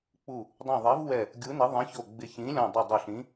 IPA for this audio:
k͡p u˧˩ | dˤ õ˧˩ ðˤ ɛ˨˥ v w ɛ˧˩ | ɡʲ u˨˥ n ɪ˨˥ ðˤ ĩ˨˥ ç o˧˩ ɡ͡b ɪ˧˩ ç ĩ˨˥ lʲ ɔ̃˧˩ dˤ ɪ˧˩ dˤ ʊ˧˩ ɬ ĩ˨˥

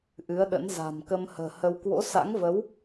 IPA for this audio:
ʔ ɨ˨˦ ə̯ ɗ ə̰˧˥ n z a̤˨˩ m k ə˧ m h ə̤ː˨˩ h ə˧ w k w o̰˧˥ s a̰˧˥ ŋ v ə˨˦ w

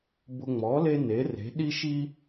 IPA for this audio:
b ʊ˦ ŋ͡m ɔ˨˥ l e˦ n e˨˥ r e̤˨˥ ɗ i˦ ʃ i˦

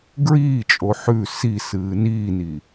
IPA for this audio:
ɡ ɹ iː t͡ʃʼ o ħ ʉ s i s ɨː n iː n i

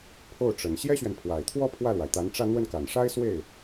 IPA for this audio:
pʰ o˥˩ ʊ̯ ʈ͡ʂ ə˨˩ n ɕ j ɛ˥ ɕ ɥ ɛ˨ n pʰ w a˨˩ ɪ̯ t̪ʰ w ɔ˥ pʰ w ä˥˩ l w a˩ ɪ̯ t̪ a˧˥ n ʈ͡ʂ ä˥˧ n̪ w ə˥˩ n k a˨˩ n ʂ a˥ ɪ̯ s w e˥˩ ɪ̯

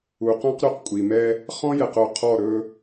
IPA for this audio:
u˨ q ɔ̃˦ q ɾ y˨ q kʷʼ i˨ m ɛ˦ | χ ɔ̃˦ j ɛ˨ q o˨ qʰ ɔ˦˨ ɾ ɵ˦

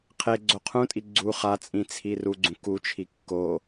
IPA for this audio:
qʰ e ɡ͡ǀ o qʰ ũ tʼ i ɡ͡ǀ u χ a t͡sʼ ĩ t͡sʰ i r u ɡ͡ǀ ũ k u t͡ʃʰ i kː o

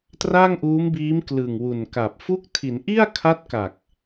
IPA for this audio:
t r a˥˩ ŋ ʔ uː˦˥ m b iː˦˥ m k l ɯ˨˩ ŋ w u˨˩ n k a˨˩ p̚ f u˦˥ k̚ tʰ i˩˦ n ʔ i˥˩ a̯ kʰ a˦˥ t̚ k a˨˩ k̚

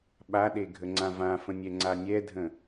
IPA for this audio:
ɓ a ɗ e ɡʱ ə ŋ͡ǀ ã v ã f ə̃ nʲ ɛ ŋ͡ǀ a nʲ ɛ dʱ ə̃

